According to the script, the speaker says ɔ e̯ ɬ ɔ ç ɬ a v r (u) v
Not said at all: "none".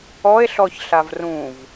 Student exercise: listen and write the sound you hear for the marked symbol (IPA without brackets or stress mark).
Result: ũ